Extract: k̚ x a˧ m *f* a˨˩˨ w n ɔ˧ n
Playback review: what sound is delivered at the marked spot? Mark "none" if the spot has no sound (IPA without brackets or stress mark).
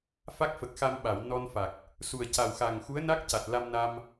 ɓ